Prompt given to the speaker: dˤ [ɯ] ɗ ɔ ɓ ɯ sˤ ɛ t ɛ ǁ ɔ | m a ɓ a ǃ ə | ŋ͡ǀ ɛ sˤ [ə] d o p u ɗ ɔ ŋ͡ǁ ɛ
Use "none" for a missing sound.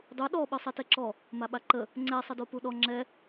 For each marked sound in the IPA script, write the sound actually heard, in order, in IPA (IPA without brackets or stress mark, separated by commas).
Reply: u, ə